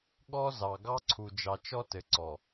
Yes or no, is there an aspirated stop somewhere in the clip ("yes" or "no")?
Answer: yes